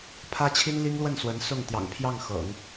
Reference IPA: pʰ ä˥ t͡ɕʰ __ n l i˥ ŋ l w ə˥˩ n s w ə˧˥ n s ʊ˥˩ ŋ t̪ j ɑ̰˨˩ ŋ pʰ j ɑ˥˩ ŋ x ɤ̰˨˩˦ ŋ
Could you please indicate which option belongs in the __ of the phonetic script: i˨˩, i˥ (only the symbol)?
i˥